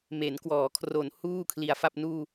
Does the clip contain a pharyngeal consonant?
no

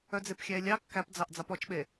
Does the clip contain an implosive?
yes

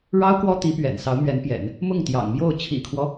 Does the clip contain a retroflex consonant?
yes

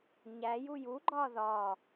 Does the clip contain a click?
yes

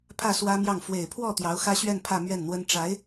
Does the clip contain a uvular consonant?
no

